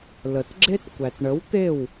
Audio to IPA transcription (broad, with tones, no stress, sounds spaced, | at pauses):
l ə˨ t ɡ͡ǁ e˦ t kʷ æ˨ t ɳ ə˨˦ w t̪ e˦˨ w